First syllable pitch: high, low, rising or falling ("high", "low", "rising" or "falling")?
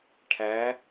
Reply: rising